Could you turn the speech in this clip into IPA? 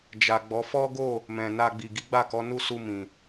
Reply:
d͡ʒ a˨ ɡ͡b ɔ˨˦ f ɔ˦ ɡ o˦˨ | m ɛ̃˨ n a˧ ɡ͡b i˨ ɡ i˨˦ ɡ͡b a˦˨ k ɔ˨˦ n u˦˨ s u˧ m ĩ˨

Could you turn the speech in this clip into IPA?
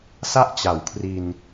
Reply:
s a˥˩ ʔ t͡ɕ a˩˦ w kʰ r i˧ n

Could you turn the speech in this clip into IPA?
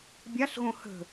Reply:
bʲ a ɬ ɣ õ h ə̤

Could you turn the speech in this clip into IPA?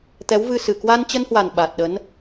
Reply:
t̪ ɛ˨˦ w v ɨ˧ s ɨ˨˩ k w a˧ n t͡ɕ ə˧ n h w a˨˩ n ɓ a˨˩ t̚ ɗ ə˨˦ n

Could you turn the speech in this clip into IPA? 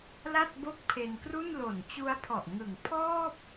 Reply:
l a˥˩ t̚ b o˥˩ k̚ pʰ e˧ n k r u˥˩ n l o˨˩ n t͡ɕ u˦˥ a̯ pʰ ɔ˨˩ ʔ ŋ ɯ˩˦ ŋ pʰ ɔː˥˩ p̚

